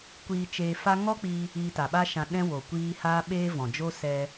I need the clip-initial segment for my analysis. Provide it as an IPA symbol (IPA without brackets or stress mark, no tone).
kʷ